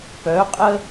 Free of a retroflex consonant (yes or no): yes